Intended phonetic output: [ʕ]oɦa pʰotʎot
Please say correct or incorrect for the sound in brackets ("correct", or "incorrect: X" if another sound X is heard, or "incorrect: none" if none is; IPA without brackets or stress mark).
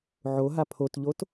correct